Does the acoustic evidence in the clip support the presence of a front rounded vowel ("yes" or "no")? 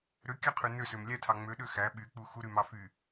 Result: yes